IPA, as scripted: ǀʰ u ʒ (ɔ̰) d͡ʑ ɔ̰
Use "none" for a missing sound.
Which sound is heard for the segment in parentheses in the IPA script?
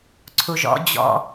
ɔ̰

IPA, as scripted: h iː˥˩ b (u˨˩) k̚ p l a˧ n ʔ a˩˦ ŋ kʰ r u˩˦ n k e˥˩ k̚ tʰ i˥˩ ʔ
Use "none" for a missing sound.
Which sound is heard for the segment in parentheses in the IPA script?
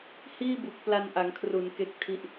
u˨˩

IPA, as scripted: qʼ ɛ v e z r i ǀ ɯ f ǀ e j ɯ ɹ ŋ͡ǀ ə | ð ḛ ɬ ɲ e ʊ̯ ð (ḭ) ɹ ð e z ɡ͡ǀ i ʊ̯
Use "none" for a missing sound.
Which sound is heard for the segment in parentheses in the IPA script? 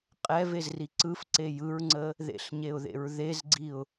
ḛ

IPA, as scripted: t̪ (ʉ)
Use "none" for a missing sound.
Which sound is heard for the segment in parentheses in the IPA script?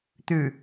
ʉ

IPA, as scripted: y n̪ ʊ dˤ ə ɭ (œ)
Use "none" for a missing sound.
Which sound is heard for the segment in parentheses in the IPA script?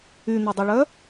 œ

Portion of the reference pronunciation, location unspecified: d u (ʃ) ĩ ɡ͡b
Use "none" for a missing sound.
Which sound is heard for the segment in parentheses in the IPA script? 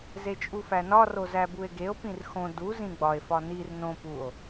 z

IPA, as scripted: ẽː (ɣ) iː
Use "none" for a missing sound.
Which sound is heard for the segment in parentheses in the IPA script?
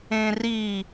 r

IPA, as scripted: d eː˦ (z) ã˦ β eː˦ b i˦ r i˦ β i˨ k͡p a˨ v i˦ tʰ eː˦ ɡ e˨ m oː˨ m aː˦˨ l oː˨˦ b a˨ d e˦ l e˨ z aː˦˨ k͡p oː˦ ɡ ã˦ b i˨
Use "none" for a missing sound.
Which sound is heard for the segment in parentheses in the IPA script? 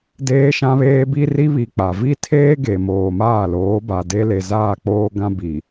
ʃ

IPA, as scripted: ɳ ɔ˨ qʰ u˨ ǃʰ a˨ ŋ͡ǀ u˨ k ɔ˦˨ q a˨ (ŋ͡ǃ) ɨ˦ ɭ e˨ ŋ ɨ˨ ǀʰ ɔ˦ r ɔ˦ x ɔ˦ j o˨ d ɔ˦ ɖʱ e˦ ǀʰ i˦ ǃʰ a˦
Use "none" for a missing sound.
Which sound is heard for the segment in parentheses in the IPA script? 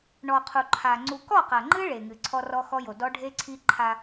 ŋ͡ǃ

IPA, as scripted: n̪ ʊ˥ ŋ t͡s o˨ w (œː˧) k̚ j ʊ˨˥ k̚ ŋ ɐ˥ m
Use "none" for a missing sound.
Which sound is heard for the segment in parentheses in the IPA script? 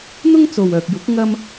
œː˨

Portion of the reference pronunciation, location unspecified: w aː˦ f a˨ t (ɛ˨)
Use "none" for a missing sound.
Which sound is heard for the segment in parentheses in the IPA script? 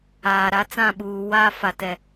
ɛ˨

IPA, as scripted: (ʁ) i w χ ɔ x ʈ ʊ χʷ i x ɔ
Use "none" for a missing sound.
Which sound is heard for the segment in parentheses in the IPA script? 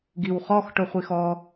ɡ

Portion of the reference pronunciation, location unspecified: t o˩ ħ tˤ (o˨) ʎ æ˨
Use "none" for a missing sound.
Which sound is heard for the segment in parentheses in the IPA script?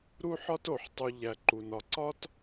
u˨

